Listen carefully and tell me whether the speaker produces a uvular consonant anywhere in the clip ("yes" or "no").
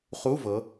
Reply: yes